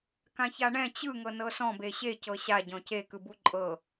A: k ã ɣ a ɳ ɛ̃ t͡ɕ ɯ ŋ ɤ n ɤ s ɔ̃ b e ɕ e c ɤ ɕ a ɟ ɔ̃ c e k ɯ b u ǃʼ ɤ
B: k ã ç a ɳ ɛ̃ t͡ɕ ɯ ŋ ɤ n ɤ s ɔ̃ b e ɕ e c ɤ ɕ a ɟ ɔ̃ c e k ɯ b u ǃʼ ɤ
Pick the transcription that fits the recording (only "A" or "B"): B